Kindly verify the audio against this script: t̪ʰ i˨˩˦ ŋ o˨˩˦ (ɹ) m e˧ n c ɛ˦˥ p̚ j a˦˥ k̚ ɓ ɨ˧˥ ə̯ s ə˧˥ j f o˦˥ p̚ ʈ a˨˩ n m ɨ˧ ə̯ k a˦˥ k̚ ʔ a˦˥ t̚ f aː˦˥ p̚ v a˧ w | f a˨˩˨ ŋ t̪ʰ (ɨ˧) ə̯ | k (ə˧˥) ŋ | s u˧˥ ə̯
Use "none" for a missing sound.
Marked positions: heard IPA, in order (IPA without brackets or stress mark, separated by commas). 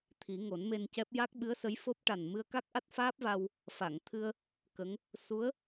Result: n, ɨ˧, ə˧˥